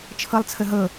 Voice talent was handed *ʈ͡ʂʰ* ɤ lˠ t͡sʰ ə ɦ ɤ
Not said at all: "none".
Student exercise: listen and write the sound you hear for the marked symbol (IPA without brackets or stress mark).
t͡ʃʰ